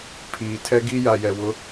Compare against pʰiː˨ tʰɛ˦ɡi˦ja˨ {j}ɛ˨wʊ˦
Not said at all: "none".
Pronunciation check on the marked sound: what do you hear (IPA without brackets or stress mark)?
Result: j